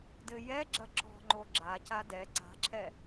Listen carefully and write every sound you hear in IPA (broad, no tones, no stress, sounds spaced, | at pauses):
d ɘ j ɛ ɡ͡ǁ ɐ ǁ ɔ̤ ŋ͡ǃ o ɡ͡ǁ a c a d ɛ ǀ a̤ ǁʰ ɛ